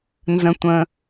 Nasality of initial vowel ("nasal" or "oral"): nasal